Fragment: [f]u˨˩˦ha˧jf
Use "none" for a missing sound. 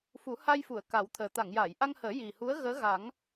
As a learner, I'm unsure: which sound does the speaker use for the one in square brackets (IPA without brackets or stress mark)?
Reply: f